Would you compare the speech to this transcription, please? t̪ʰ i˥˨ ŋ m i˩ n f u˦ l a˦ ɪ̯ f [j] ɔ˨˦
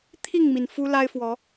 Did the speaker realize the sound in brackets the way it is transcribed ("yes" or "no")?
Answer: no